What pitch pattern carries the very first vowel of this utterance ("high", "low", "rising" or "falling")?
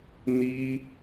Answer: high